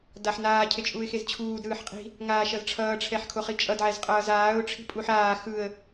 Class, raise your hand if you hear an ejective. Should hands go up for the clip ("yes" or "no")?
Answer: yes